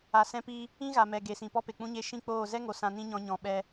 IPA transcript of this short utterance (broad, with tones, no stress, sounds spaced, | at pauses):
a˨ s ɛ̃˧ p iː˧ | ĩ˦ ɣ a˨ m ɛ˨ ɡ e˨ s ĩ˨ p ɔ˦ p e˨ k͡p ũ˧ ɲ e˧ ʃ ĩ˦ k͡p oː˦˨ z ɛ˦ ŋ o˨ s ã˧ n ĩ˦ ɲ ɔ̃˧ ɲ ɔ̃˨ ɓ ɛ˧